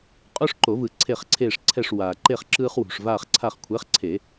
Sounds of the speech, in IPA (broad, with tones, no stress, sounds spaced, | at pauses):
qʼ o˦ ʂ ǃ o˨˩˦ v ɯ˩ ǀʰ e˦˨ χ ǀʰ eː˦˨ ʂ ǀʰ ɛ˦˨ ʂ w aː˩ ǃ e˦˨ χ ǁ ɯː˦ χ w ṳ˩ ʂ v aː˦˨ χ ǀʰ a˦˨ χ kʷʰ ɛ˨˥ χ ǀʰ e˨˩˦